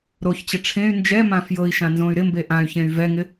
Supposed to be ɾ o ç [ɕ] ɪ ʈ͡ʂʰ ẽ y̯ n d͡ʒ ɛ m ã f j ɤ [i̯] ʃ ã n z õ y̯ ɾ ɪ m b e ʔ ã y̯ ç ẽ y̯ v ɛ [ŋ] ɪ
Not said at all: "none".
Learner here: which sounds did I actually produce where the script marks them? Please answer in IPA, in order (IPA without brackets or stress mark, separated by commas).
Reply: t͡ɕ, i̯, ŋ